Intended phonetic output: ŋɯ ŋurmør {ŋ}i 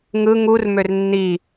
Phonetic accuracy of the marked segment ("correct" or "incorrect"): incorrect